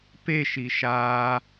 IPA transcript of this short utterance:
p e ʃ i ʃ a

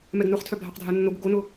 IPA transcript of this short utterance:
m ɛ ɡ n ʊ χ tʰ œ bʱ a q dʱ a nː o ɡ ʊ ɡ o n ʊ

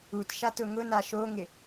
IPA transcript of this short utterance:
u t ʃ a t ʊ ŋ ʊ n a ʃ o ŋ ɪ

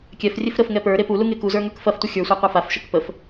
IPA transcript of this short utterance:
kʲ ɛ f rʲ e f ɾ ə f ŋ ɛ p ə˞ ɾ e p u l u ŋ e k u z ə˞ ŋ ə˞ k f ɐ f tʷ ə xʲ ə˞ sʷ a qʷ a f a f ʃ ə k p ə f

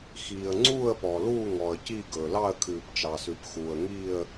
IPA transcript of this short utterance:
x iː˩ ə̯ ŋ͡ǀ uː˦˨ ə̯ p ɔ˩ l uː˦˨ ŋ ɔ˩ ə̯ c i˦˨ ɡ ɵ˩ l ɑ˦˨ ə̯ kʰ ʉː˩ p t͡ʃ ɑ˩ s ʉ˩ p x uː˩ ə̯ ŋ iː˦˨ ə̯

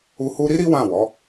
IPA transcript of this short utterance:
u˦ h u˦ ɾ i˦ ɾ i˦ w ã˦˨ w ɔ˨˦

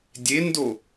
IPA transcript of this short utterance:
dʲ e n d o

